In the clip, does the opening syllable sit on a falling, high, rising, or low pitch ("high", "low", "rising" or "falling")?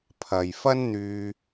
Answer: low